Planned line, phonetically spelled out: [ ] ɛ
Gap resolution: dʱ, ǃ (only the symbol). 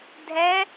dʱ